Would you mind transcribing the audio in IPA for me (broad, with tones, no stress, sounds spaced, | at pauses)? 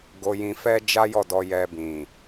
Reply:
ɡ o˧ j ĩ˧ f ɛ˦ d͡ʒ a˦ j ɔ˦˨ d ɔ˧ j ɛ˧ b ĩ˨